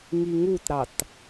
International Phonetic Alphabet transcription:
ŋiŋutɾɑt

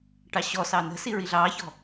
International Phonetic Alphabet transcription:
ʈɑɕɔsɑ nə̤si ɹiɮɑːçɔ̤

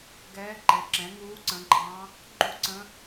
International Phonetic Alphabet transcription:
ɡɛː˧˥ǃɛ˩˥ǁɛ̃˩˥ ŋuː˧˥ǀə̃˩˥ɡ͡ǃɑ̃˧˥ | ɡ͡ǃu˥˨ǀə̃˧˥

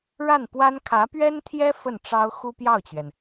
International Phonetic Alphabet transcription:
ɻa˥˩npwa˥n kʰä˧˥pɥɛ˥nt̪ʰjɛ˥ fə˥˩nʈ͡ʂɑ˥ʊ̯ xu˥pjɑ˥˩ʊ̯t͡ɕɥɛ˩n

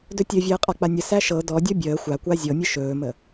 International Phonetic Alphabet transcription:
dɵtʲɵvʲəː qʼak͡panʲəsæ ʃɤ dɔdʲɔ bʲəː xʷakʷa zʲɤmʲə ʃɵːmə

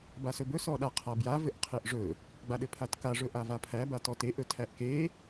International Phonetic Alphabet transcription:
basɵbɵ sɔɗaqʰabja vɘʔqʰeʔʐɵ | ɡ͡baɗɘpʰatka ʐɵʔavapʰæ batɔteʔ ɵtʰæʔke

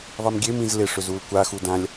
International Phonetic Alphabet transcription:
ðˤimɡʲem ĩzlɪ ʂʏzulkʷa xudãlʲ

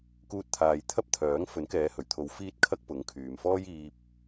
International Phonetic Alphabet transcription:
kuː˧t̚t̪ʰaː˨jt̪ʰɐ˥p̚t̪ʰœː˨˥ŋ fɵ˨˥nkɛː˨˧hɵ˨˩ɥt̪ʰo˨˧w fiː˥t̚kʰɐ˥k̚ pʊ˨˥ŋkʰyː˨m fɔː˥jiː˧p̚

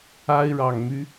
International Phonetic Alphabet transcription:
a˥ɪ̯ɻɑ˨˩ŋmy˦

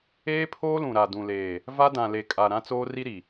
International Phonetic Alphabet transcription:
eː˦pʰoː˦lũ˨ɾa˨ dũ˨leː˨ | va˦dã˨ le˨kʼa˨ ɾã˦t͡soː˦ri˦ɾi˨

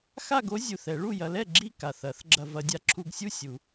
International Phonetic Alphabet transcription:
xa˥˨ɡo˦˥ zʲu˨˩θ ɛ˨˩˦ɭu˥˨jɐ˨˥lɛ˥˨ ɡ͡ǁi˥˨ka˨˩θ ɐ˨˩˦θ ɡ͡ǁɐ˧vɐ˨˥dʲa˧ ǁʰu˧ɡsʲu˥˨sʲu˨˩˦

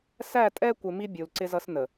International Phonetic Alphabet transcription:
sæ˦˨tʼɛ˦kʷɪ˨ mi˦bʲu˨l ǀɪ˦zʌ˦snə˨

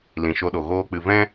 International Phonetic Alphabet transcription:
lĩ˨ʃo˧ɗo˨ ɣoː˦k͡pɨ˧ vɛ̃˦

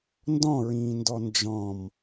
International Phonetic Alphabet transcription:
ndɔ̃ɹĩːndɔ nd͡ʒɔ̃m

